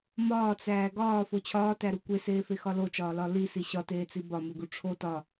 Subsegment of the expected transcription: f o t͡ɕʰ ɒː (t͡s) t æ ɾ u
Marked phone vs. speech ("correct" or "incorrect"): incorrect